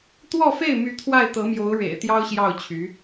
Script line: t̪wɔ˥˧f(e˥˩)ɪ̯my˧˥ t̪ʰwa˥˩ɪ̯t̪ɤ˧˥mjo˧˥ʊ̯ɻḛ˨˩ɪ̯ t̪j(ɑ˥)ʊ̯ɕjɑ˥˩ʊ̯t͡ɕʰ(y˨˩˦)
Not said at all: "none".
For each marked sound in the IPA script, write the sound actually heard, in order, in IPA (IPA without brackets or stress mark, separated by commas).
e˥˩, ɑ˥, y˧˥